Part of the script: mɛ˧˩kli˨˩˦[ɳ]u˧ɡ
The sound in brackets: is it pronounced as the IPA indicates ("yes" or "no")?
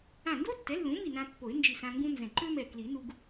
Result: no